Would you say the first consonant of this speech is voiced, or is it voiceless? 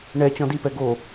voiced